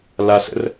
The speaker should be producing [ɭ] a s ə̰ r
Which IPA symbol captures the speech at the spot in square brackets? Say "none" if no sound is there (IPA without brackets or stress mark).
l